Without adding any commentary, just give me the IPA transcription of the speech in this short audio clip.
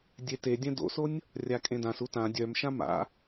dʲ e t e dʲ ɛ̃ d o̰ s o nʲ | rʲ a kʼ ẽ d ã s u t ã dʲ œ m ʃ ã m a̰

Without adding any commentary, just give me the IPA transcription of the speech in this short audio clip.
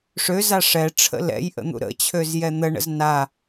ʂ ø z a ʂ ɛ ʈ͡ʂʰ ə̰ l ɛ̰ j ʔ ə̰ n̪ ṵ ɾ ə̰ t͡ɕʰ ø z j ɛ n̪ ə ɳ ə̰ z n a

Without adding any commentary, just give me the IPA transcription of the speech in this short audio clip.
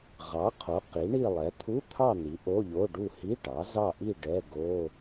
ʁ ɑ˩˥ qʰ o˩˥ q i˩˥ ɳ i˥˨ lˠ ɛ˩˥ t̪ʰ u˧˥˧ t̪ʰ ɑ˥˨ n̪ i˩˥ ʔ o˧˥˧ ʎ o˧˥˧ ɖ u˥˨ h i˧˥˧ ʈ ɑ˩˥ z ɑ˥˨ ʔ i˥˨ ɖ ɛ˧˥˧ ɡ o˧˥˧

